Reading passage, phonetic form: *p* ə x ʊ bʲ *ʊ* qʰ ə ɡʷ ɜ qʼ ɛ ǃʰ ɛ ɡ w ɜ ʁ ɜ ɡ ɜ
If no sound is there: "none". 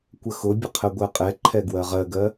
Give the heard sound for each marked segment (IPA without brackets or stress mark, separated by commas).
kʷ, ə